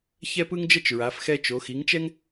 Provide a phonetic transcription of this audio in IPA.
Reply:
ç ɛ˥ p ɯ˥ ŋ d͡ʒ ʌ˥ t͡ʃ ɹ a˨˦ f x ɛ˥ t͡ʃ o˨˦ x i˨˦ ŋ t͡ʃ ɛ˥ ŋ

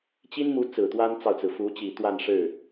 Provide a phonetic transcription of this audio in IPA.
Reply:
t͡ɕ i˥ n m u˧˥ t͡s ɹ̩˨˩ t̪ w a˥ n t͡s ɑ˨ ʊ̯ t͡s ɹ̩˩ f u˧˥ t͡ɕ i˨˩ t̪ w a˥˧ n ʂ ɻ̩˥˩

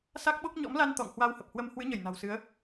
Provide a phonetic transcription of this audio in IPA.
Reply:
s a˦˥ k̚ ɓ o˦˥ k̚ ɲ ɔ̰˧˥ m l a˧ n t̪ ɔ̰˧˨ ŋ h w a˧ w h ə˨˩ p̚ h w ə˧ m h w ɨ˨˦ ɲ ə˧˩ j n a̤˨˩ w s ɨ˨˦ ə̯

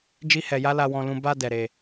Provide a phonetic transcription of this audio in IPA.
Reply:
d͡ʒ i˦ h ɛ˧ j a˦ l a˧ w ɔ̃˧ l ũ˧ b a˧ d ɛ˧ ɾ e˧

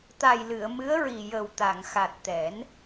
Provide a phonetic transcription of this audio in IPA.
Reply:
t̪ a˨˩ j l ɨ˨˩˨ ə̯ m ɨ˧˥ ə̯ ɹ i˨˩ j ə˨˩ w t̪ a˨˩˨ ŋ x a˨˩ t̚ t̪ ɛ˨˩˦ n

